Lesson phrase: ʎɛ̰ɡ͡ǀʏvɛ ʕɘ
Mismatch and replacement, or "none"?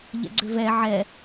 ɘ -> ɛ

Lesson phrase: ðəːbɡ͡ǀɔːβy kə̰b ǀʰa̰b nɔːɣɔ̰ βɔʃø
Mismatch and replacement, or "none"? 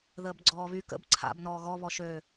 ɔ̰ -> ɔ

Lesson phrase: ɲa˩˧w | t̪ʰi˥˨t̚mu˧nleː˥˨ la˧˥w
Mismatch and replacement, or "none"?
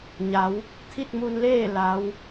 none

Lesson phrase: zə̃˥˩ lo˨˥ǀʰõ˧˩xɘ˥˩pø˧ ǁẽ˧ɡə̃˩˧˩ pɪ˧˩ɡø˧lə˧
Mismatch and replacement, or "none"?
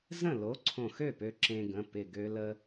ɘ˥˩ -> ø˥˩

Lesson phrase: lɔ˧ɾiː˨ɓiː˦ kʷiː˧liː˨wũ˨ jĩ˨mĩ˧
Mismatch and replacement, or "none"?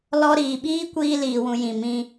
none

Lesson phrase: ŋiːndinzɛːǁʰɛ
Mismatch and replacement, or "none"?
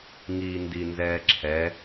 none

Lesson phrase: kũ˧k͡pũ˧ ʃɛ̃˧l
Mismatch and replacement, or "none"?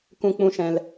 none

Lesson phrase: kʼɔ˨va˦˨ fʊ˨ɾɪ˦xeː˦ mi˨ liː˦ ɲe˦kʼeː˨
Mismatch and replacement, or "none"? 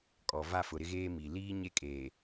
x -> ɣ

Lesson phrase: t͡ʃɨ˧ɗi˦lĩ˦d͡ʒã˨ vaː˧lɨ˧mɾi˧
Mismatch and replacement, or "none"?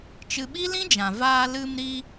ɗ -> ɓ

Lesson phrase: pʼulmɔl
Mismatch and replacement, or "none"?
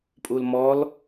none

